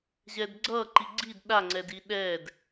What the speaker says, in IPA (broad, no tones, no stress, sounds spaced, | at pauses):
ʑ ɛ d ɡ͡ǀ ʌ ǃ i ɡ͡ǀ i d ɗ a ŋ͡ǀ ɛ d i ɗ ɛ d